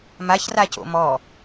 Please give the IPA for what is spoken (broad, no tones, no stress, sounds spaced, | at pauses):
m a ç r a c o̰ m ɔ